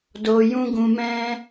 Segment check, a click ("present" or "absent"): absent